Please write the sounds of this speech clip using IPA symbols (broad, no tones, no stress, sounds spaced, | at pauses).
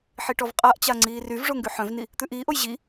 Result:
ħ i ʈ ɔ v qʼ a ʔ t͡ɕ a ŋ͡ǀ iː r y v ʐ o ŋ ɡ y ħ œ̃ v n i | t̪ ʉ ʔ iː ʔ o j ʑ i